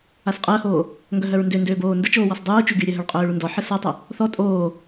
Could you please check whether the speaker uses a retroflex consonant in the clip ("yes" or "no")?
yes